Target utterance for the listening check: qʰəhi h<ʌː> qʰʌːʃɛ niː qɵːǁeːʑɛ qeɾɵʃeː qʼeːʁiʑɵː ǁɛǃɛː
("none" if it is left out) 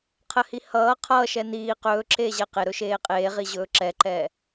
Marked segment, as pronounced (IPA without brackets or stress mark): ʌː